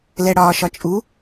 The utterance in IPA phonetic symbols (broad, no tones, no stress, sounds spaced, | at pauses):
l ɛ ɽ ɒː ʃ ɒ t͡ʃʼ u